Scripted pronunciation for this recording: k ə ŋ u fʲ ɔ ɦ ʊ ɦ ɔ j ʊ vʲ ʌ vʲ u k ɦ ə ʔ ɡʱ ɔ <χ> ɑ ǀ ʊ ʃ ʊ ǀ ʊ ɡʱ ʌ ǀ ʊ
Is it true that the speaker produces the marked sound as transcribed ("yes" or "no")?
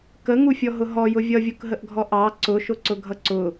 no